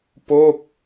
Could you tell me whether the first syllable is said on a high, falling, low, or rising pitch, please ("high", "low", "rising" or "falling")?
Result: falling